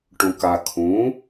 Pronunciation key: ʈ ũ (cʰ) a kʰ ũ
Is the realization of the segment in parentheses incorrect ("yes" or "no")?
yes